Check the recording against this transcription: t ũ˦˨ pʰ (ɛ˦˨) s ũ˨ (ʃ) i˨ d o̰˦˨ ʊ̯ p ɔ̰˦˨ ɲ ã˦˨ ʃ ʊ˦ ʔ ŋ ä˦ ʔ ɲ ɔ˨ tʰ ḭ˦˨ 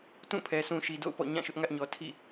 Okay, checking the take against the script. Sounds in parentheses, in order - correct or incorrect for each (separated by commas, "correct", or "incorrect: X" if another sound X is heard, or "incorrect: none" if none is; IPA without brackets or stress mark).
incorrect: ɛ˨, correct